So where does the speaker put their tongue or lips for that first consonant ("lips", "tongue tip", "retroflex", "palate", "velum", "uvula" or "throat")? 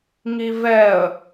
velum